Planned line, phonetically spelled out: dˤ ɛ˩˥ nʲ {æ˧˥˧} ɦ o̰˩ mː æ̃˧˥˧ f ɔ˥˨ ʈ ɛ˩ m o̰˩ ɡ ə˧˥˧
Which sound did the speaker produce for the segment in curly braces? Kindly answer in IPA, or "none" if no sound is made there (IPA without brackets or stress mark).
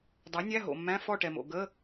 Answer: æ˧˥˧